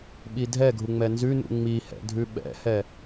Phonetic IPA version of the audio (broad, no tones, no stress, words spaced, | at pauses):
ɓidʱɛɡʱu ŋ͡mɛnzʉnṵ ŋ͡mihɛ̰ dʱʉɓɛ̰hɛ